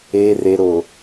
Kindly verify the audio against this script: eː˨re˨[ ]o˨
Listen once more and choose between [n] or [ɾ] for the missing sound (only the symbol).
ɾ